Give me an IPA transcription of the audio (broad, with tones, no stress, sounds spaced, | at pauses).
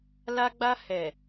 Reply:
l a˦ ɡ͡b a˦ h ɛ˨